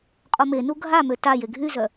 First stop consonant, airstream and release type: ejective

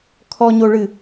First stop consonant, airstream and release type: aspirated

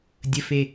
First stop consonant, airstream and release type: plain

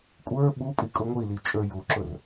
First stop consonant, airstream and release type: ejective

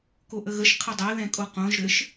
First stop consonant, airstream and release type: plain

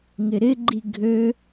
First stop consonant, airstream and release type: click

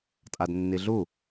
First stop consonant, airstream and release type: ejective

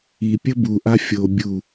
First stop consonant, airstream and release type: plain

